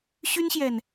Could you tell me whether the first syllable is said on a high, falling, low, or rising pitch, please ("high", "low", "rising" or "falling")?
high